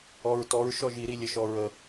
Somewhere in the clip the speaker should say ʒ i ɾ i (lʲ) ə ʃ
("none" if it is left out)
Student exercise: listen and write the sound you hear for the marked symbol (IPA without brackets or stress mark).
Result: lʲ